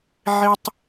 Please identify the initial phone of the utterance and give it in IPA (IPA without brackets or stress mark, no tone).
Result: ʕ